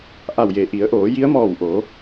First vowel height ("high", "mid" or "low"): low